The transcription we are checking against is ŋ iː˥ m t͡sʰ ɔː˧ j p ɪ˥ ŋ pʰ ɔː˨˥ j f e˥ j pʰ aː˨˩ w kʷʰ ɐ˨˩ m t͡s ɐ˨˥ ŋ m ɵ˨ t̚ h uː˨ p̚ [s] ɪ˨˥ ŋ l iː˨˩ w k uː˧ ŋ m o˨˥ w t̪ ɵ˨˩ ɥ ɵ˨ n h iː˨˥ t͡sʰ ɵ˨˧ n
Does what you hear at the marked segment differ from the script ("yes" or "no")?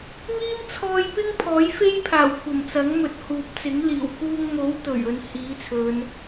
yes